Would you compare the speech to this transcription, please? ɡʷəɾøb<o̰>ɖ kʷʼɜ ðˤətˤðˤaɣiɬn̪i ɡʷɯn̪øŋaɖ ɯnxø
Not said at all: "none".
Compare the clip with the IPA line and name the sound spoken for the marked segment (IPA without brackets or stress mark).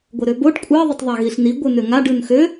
o